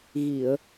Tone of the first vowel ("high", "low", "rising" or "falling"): low